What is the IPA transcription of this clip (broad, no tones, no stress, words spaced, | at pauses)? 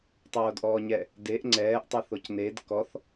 tˤoːdʔɔːɲɛ | deʔ ŋ͡ǀɛːʔtˤeθoc ned kɔθ